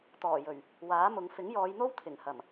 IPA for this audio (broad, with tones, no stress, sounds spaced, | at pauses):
t̪ ɔː˨˩ j ɵ˨˩ ɥ | w aː˨˥ m ʊ˨˧ ŋ f ɪ˨˥ ŋ j ɔː˨˧ j n̪ o˥ w t̪ʰ ɪ˨˩ ŋ h ɐ˨˩ m